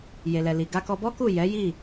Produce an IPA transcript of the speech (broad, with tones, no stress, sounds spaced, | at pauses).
j e˨ l ɛ˨ l i˨ ɡ a˧ k ɔ˧ b ɔ˦ k u˦˨ j ɛ˨˦ j i˦˨